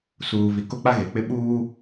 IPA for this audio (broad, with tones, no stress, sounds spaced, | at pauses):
s uː˨ v i˨ k o˦ k͡p a˦ ɣ e˨ k͡p ɪ˦ ɓ uː˦